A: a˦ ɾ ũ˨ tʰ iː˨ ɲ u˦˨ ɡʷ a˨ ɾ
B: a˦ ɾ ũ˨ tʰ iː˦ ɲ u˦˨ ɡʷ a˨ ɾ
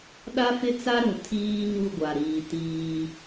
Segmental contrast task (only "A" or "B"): B